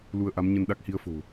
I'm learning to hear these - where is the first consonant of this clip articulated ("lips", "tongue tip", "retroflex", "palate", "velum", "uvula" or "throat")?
tongue tip